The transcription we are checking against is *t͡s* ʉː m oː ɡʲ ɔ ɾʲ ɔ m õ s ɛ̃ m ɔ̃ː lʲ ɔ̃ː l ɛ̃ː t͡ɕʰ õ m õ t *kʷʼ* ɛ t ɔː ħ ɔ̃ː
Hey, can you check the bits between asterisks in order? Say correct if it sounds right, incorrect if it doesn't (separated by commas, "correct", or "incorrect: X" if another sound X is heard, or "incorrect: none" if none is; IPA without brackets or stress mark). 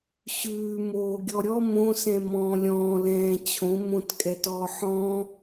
incorrect: ɕ, incorrect: kʼ